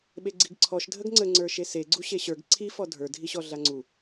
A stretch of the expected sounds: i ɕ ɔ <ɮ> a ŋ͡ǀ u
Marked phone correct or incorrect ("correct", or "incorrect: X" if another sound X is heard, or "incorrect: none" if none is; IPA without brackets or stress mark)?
correct